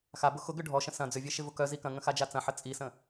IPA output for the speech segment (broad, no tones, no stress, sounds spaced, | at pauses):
x a b ʊ x ʊ ɡ ʏ ɖʱ ɔ ʃ ə̃ s ɐ̃ d͡z ʏ vʲ e ʃ ɪ v ʊ k œ z i k ɐ̃ ŋ ə̃ x a d͡ʒ a t͡s ɐ̃ ħ ə t͡sʼ i s ə̃